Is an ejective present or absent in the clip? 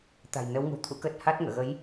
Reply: absent